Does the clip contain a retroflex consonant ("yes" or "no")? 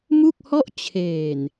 no